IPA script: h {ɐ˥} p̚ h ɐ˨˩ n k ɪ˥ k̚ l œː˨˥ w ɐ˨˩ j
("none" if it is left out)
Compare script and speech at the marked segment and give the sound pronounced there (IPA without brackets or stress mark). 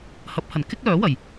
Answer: ɐ˨˥